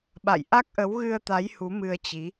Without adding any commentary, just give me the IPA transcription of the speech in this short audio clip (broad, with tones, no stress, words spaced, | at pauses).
ɓa̰˧˨j ʔa˦˥k̚ʔə˨˦wɣɨ˧ə̯t̪a˨˦j hu˨˦mɨ˧ə̯t͡ɕi˨˦